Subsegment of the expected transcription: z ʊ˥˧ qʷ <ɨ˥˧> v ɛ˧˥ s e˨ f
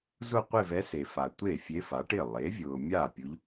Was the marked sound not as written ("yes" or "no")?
yes